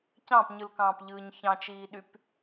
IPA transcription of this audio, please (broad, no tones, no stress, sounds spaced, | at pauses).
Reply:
c ɑ̃ p ɲ ɯ l k ɑ̃ː p ʎ ɯː ɲ ç ɑ̃ t͡ʃ iː ɗ y p